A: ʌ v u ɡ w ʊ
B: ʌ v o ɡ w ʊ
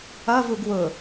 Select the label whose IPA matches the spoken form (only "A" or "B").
A